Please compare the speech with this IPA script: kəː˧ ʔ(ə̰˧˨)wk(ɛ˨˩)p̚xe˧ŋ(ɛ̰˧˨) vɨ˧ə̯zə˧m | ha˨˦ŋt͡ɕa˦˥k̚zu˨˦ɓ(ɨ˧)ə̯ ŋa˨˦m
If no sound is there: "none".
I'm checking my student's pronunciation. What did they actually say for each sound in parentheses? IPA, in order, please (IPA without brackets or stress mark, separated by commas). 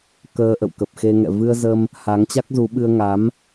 ə̰˧˨, ə˨˩, ɛ̰˧˨, ɨ˧